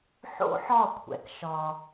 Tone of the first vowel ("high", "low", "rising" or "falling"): high